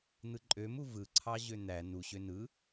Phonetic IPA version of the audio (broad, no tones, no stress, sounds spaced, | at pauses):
n̪ ɯ ǃʼ ø m u v ɯ ǀʰ ɑ ʑ ø n̪ æ n u ɕ ø n ɯ